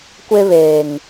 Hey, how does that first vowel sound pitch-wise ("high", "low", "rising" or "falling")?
high